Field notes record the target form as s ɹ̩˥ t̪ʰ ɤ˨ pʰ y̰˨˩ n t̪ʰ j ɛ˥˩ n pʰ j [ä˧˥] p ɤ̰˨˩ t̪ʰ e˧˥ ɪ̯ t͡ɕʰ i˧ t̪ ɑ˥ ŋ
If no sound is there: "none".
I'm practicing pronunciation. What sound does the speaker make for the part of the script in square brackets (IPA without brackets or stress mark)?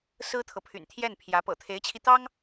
ä˧˥